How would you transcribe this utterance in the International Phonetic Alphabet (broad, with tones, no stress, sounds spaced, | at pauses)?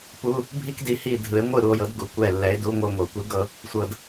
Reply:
p u˧˥˧ | bʱ i˥ k d i˨˦ h i˦˨ dʱ ɯ˨˩˦ e̯ ŋʷ ɯ˦˨ ɾ u˨ o̯ j ɤ˨˦ d ɡ u˨ kʷ ɛ˦˨ lː ɛ˨˦ e̯ d u˧˥˧ ŋʷ ɤ˦˨ ŋʷ ɤ˨˩˦ kʷ i˨˦ ɡ ɤ˦˨ | sʷ ɤ˨ d